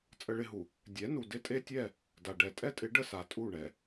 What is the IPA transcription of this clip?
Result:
t͡sʼ ə˦ ɭ ɪ˦ ɦ u˨ | dʲ ɛ˨˦ n u˨ d ɪ˦ tʼ e˦ tʲ ɛ˦˨ | d a˨ ɖ ɛ˨ tʼ ɛ˦ tʼ ɪ˨˦ ɖ ə˦ s a˨˦ tʼ u˦˨ ɳ ɛ˨

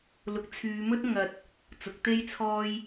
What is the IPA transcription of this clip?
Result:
l ʊ˨ k̚ t͡sʰ yː˨˧ m ɵ˥ t̚ ŋ ɐ˧ t̚ | t͡s ʊ˨˥ k̚ t̪ e˥ j t͡sʰ ɔː˥ j

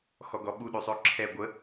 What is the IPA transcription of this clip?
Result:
x ɔ ɡ ɔ ɓ u ɗ y sˤ ø ǁʰ ɛ ɡʷ ə

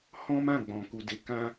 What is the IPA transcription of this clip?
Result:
h ɔ̃˦ m ã˦˨ ɡ͡b ɔ̃˨ k u˨ d e˨˦ k ã˦

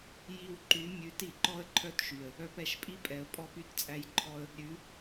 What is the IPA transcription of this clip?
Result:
j i˧ w ǃ y˨˦ mʲ ʉ˨˦ t i˨ ǃ ɔ˦ ə̯ ǃʰ œ˦ t ʃ y˨ ə̯ | œ˧ p ɛ˨ ʃ pʼ i˦ pʼ ɛ˨ ə̯ pʼ ɔ˦ p y˦ t t͡sʼ æ˦ j ǃʰ ɔ˦ ə̯ | ɾʲ ʉ˨˦

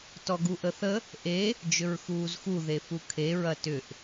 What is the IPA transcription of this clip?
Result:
t ɔ ɡ u ʔ ə θ ə | ʔ e | d͡ʒ ʏ ɹ x uː z x u ð e f u kʰ e ɹ ɐ t ʏ ʔ

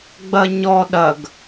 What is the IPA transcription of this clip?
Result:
ɡ͡b ɐ ɲ ɔ ɗ ɐ ɡ

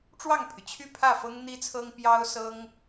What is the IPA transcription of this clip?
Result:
ʈ͡ʂ w ɑ˥˩ ŋ pʰ y˩ t͡ɕʰ y˥˧ pʰ ä˥˩ f ɤ˥ ŋ n̪ i˥ t͡sʰ ɤ˥ ŋ p j ɑ˥ ʊ̯ s ɤ˥ ŋ

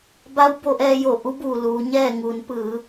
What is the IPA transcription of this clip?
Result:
b a˧˥ w b o˧ ʔ ɛː˧ j o˧˩ ʔ u˧˥ b uː˩ l uː˩˧ ɲ ɛː˥˨ ŋ uː˩˧ n p ɯː˩˧

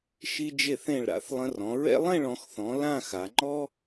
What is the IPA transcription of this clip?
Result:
ʃ i˧ d͡ʒ e˧˩ θ ẽ˧˩ ɭ ɾ a̰˩˧ θ lˠ ə̃˧ r ɔ̃˩˧ ɹ ɛ̰˥ lˠ ẽ˥˧ ɭ ɔ̃˩˧ x θ ɔ̃˩˧ l ã˥˧ x a˩˧ ŋ͡ǃ ɔ˥

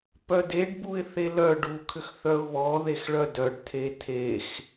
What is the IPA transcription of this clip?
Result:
p œ d e ɖ b u ɪ̯ θ e l œ ɖ u kʰ ʏ x θ œ ʊ̯ β ɔ ð e x ɭ œ d œ ɖ tʰ e tʰ e x

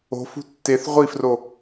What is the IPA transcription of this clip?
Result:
o̤ f ṳ tː e θ ʁʷ i f r o

